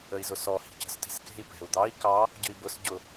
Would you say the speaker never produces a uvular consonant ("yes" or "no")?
yes